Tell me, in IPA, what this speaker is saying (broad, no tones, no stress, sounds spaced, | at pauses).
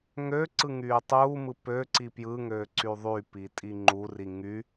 ŋ ø ǀ ɯ ŋ yː tˤ uː m ɯ p ø ǀ i p j ɯ ŋ øː ǀ y ðˤ y p i tʼ i ŋ͡ǃ u r i ŋ y